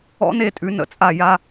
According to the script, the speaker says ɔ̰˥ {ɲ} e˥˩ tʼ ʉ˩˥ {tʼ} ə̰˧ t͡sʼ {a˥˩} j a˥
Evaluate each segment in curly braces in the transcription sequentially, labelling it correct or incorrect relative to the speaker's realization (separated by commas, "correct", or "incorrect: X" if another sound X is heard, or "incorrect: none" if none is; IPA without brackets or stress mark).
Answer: incorrect: n, incorrect: n, correct